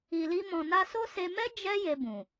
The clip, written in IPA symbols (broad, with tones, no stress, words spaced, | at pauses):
i˨li˧mɔ̃˨ na˧so˦se˧mɛ˦ d͡ʒɛ˦ je˧bũ˨